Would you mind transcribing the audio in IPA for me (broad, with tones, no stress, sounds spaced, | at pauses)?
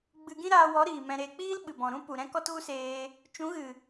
ɡ͡b ɨ˧ ɡ ĩ˦ ɾ aː˧ w ɔ˨˦ ɾ iː˨ m ɛ̃˧ ɾ eː˧ k͡p iː˦ l ɓ ɨ˨ b ɔ̃˨ ɾ ũ˦ p u˨ ɾ ɛ̃˦ k ɔ˦ t ɣ u˦ s eː˧ | t͡ʃ ũ˨˦ ɣ ɨ˨